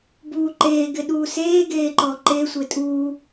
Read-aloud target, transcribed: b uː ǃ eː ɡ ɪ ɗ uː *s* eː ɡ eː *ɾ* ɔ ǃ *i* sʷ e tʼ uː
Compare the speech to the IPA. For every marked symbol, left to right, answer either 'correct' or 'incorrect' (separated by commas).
correct, incorrect, incorrect